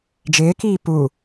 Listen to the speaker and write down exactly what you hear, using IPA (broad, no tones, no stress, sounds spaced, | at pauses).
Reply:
d͡ʒ ɪː k iː p u